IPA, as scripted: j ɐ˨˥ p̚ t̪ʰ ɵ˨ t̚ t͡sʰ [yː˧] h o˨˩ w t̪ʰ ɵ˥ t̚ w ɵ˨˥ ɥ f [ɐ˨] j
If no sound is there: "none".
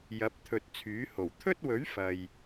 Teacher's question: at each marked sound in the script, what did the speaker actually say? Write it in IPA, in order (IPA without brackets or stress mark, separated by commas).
yː˨˥, ɐ˨